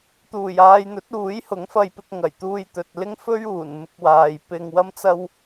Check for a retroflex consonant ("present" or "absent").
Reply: absent